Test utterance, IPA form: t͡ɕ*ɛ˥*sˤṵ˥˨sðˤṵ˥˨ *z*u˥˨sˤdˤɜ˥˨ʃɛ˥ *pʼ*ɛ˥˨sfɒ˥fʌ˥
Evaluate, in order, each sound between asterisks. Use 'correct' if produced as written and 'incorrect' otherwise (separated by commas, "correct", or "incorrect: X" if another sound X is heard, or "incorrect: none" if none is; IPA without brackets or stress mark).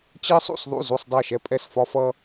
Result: incorrect: ɜ˥, correct, correct